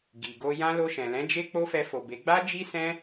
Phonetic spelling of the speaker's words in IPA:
ɡ i˨ ɡ o˧ j ã˦ l o˧ ʃ ɛ̃˨ l ɛ̃˨˦ d͡ʒ e˦ k͡p o˦ f ɛ˧ f o˨ b e˨˦ ɡ͡b a˦ d͡ʒ i˦ s ɛ̃˦

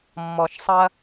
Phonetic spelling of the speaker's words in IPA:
mː ɔ˩ ʃ sˤ ɐ˧

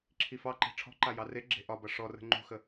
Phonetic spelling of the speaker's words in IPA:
ǁʰ i f ɑ ǃ e̤ ʈ͡ʂʰ ɔ̤ ǃ a j ɑ r e ɡ͡ǁ e̤ ʔ ɒ b ʌ ʂ ɔ r ə̤ ŋ͡ǃ ṳ x ə

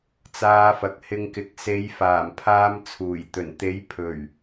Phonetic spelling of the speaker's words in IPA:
t͡s aː˧ f ɐ˨ k̚ h ɪ˧ ŋ k ɪ˨˥ k̚ s e˨˧ j f aː˨˩ m pʰ aː˧ m t͡sʰ uː˨˩ j t̪ ɵ˨˩ n t̪ e˨˥ j pʰ ɵ˨˩ ɥ

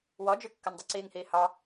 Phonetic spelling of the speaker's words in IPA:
w ɔ d͡ʒ y kː ə n dˤ y ǀ iː ŋ h iː h ɑ

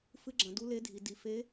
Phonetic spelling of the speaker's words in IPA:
f ɨ˧˥ ɡ͡ǁ ɐ̃˩˧ d u˧˥ l e˧˥ dʱ i˩˧ d i˩˧ f e˧˥

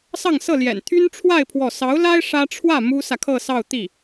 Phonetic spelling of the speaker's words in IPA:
s ɑ˥˧ ŋ s ɤ˥˩ l j ɛ̰˨˩ n t̪ʰ y˥ n ʈ͡ʂʰ w a˥˧ ɪ̯ pʰ w ɔ˥˩ s ɑ˧˥ ʊ̯ l a˥ ɪ̯ ʂ ä˥ ʈ͡ʂʰ w ä˥˩ m u˥ s ä˨ kʰ ɤ˥˧ s ɑ˥˧ ʊ̯ t̪ i˥˩

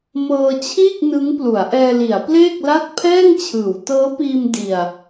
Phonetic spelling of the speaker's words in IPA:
m ɤː˧ t͡ɕʰ iː˥˩ k̚ n ɯ˦˥ ŋ p l u˩˦ a̯ ʔ ɛː˧ l i˩˦ a̯ p l eː˥˩ k̚ l a˥˩ t̚ pʰ ɛː˥˩ ŋ t͡ɕʰ ɯː˩˦ w t ɤː˦˥ p iː˧ m d i˧ a̯

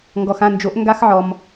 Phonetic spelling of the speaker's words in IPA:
ŋ ɡ ɔ˩ x ã˥˩ n d͡ʒ o˩˥ ʔ ŋ ɡ a˥ x ʕ ɔ˩ m

